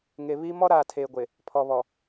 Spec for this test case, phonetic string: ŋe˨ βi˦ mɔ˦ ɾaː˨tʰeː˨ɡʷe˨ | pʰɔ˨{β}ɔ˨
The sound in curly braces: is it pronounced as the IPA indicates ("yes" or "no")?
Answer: yes